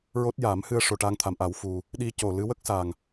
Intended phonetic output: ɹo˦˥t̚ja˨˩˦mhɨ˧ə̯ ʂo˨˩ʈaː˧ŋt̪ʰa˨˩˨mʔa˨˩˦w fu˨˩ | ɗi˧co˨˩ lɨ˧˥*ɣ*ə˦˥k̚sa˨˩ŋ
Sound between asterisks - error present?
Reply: yes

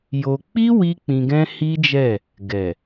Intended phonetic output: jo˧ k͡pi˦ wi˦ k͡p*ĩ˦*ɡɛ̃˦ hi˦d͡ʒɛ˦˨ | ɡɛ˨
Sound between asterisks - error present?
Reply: yes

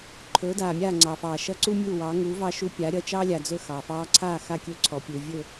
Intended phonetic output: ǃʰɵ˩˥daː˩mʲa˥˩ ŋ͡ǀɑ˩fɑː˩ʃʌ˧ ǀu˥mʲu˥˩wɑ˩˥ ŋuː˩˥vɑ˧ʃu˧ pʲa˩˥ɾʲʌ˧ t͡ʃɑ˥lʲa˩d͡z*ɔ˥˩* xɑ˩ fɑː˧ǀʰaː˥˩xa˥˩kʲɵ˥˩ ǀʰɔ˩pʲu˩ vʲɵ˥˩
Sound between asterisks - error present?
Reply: yes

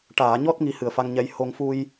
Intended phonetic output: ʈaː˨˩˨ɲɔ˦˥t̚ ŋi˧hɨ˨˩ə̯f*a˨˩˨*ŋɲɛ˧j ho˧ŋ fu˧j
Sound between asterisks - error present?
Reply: yes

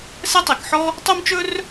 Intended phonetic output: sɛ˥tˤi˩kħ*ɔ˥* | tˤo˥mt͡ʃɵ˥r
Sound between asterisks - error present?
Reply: no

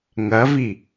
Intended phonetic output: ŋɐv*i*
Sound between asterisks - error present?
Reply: no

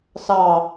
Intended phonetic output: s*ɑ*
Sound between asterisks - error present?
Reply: no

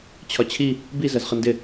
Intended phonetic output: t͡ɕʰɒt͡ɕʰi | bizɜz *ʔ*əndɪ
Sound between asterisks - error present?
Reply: yes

